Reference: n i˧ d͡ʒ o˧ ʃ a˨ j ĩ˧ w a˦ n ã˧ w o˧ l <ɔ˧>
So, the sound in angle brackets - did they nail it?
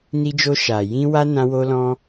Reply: no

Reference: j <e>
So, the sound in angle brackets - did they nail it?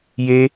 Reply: yes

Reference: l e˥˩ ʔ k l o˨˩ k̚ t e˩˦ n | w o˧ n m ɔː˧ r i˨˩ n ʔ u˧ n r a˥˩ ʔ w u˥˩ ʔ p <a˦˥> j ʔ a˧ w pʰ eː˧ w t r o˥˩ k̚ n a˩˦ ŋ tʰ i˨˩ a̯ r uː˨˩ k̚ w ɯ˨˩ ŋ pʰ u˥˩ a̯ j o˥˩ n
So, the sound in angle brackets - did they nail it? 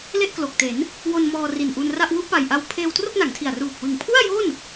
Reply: no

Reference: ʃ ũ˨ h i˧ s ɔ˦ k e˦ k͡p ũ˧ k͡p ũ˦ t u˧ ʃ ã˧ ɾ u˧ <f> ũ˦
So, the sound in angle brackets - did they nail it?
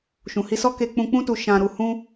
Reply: no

